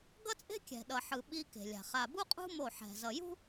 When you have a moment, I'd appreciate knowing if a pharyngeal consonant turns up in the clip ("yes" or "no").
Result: yes